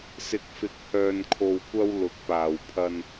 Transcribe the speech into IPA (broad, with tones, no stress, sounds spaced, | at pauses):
s ɪ˨˥ k̚ f ɪ˨˥ k̚ h œː˨ n kʰ o˨ w kʷ ɐ˧ w l ʊ˨˥ k̚ p aː˨ w pʰ ɐ˧ n